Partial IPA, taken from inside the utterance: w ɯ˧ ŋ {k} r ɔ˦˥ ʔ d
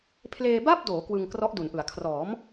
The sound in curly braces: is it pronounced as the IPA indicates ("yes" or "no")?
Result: yes